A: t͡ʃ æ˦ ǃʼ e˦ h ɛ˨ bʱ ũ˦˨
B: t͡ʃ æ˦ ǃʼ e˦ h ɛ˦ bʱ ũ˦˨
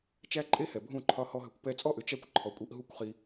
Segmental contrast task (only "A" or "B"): A